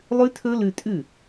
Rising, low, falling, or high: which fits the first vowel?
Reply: high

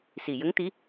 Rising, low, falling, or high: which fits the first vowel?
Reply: low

